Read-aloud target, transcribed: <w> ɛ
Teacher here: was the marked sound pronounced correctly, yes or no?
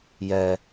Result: no